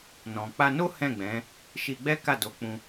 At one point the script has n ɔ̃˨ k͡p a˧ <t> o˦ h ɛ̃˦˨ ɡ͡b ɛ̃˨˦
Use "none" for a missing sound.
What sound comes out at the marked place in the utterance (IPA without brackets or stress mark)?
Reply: n